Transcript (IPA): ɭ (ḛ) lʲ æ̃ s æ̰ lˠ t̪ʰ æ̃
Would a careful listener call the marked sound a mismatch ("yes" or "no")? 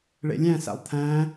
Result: no